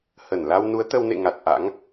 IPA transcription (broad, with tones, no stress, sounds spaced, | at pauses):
h ə˧˩ n l a˧ w n u˨˦ ə̯ t̪ ə˧ w n ḛ˧˨ ŋ a˨˩ t̚ ʔ a̰˧˥ ŋ